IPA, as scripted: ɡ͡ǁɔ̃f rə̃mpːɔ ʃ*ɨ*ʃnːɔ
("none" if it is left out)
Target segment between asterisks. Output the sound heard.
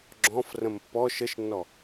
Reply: ə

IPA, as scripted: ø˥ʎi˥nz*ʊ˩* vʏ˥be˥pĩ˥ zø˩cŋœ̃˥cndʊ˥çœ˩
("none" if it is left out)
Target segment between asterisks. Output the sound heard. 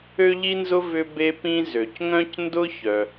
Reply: ʊ˥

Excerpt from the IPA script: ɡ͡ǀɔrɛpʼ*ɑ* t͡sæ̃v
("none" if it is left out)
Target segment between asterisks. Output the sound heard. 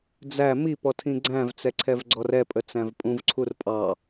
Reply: ə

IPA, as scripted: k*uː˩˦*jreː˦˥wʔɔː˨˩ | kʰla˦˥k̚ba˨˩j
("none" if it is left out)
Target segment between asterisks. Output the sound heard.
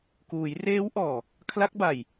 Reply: uː˩˦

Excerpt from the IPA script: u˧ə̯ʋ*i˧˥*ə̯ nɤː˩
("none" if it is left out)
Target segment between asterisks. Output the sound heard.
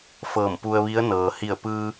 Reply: i˧˥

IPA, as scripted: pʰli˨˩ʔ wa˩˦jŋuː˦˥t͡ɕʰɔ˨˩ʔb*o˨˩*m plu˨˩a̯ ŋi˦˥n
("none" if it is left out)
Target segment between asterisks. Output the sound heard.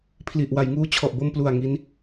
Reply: o˧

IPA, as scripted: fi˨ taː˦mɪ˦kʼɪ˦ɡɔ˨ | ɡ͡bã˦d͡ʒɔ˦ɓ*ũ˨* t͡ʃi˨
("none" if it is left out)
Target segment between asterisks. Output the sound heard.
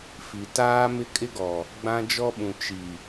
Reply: ũ˨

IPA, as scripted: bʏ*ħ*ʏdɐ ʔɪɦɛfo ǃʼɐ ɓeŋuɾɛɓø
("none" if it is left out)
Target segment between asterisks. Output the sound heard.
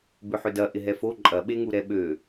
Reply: ħ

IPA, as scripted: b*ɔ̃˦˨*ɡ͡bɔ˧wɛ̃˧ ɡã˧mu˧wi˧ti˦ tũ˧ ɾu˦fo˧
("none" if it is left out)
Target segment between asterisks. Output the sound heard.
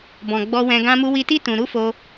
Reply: ɔ̃˨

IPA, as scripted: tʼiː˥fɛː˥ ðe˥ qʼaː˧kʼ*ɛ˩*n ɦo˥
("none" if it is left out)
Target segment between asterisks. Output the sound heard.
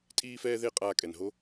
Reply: ɛ˩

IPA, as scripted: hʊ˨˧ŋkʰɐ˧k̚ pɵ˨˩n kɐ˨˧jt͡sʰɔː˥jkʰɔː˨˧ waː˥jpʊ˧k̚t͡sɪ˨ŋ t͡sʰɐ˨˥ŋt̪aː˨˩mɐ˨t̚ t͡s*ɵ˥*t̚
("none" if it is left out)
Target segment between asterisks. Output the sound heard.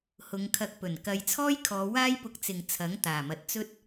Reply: ɵ˥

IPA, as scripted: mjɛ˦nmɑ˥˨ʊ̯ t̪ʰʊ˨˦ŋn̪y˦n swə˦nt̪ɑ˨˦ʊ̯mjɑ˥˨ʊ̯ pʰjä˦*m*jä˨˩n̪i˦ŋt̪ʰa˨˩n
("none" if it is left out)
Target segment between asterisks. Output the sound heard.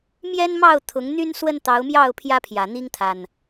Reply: pʰ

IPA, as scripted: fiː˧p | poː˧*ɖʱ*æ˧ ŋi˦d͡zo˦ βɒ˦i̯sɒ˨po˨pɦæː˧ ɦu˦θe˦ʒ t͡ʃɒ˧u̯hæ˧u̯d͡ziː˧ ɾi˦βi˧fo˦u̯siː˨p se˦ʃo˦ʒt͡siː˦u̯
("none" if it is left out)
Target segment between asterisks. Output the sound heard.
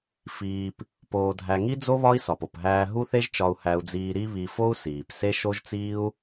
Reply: dʱ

